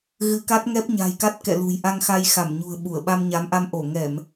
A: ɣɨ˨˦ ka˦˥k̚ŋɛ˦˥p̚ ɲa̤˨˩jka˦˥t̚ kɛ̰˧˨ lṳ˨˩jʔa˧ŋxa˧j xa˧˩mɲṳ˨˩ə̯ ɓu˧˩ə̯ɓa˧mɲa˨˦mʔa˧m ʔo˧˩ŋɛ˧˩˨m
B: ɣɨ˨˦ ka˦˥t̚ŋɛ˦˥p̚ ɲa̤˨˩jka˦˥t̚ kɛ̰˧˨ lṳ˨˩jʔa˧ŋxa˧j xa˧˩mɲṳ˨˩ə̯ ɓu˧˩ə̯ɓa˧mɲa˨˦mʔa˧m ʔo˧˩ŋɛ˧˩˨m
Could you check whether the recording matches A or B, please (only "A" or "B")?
B